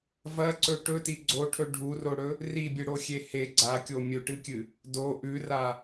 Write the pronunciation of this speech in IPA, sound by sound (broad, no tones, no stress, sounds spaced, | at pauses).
v ɐ ǀ ɵ ʈ ɵ t i ɡ͡ǀ o ʈʰ ɵ ɖʱ u r o ɽ ɵ | r i bʲ ɨ ɽ o xʲ e h e ɡ͡ǀ a kʲ o mʲ ɵ ʈ ɨ kʲ ɨ | d o ʔ ʉ r a